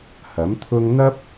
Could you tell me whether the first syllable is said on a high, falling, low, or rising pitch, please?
rising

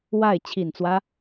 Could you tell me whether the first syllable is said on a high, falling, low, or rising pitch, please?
falling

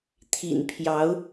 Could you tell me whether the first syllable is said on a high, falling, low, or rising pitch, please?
low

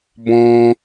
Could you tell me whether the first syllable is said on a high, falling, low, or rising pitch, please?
high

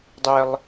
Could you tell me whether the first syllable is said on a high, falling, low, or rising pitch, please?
high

